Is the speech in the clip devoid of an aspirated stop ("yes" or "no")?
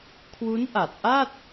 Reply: no